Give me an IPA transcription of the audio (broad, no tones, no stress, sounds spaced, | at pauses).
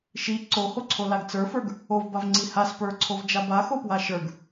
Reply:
ʃ i ǀ o h o ǀʰ o l a ɡ t͡s ə˞ f ə˞ ɡ | o v b a v ŋ͡ǀ i h a s p ə˞ ǀʰ o v d͡ʒ a b a x o p w a ʃ ə˞ ɡ